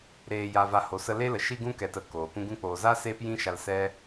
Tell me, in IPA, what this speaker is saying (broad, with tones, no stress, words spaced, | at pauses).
ɾeː˨ja˨va˨ ho˨sə˧le˦ lə˨ʃi˧ɡũ˧kɛ˨t ə˧koː˨kʷũ˦ ɡũ˧k͡poː˨za˦ seː˦pjĩ˦ʃa˧l sɛ˦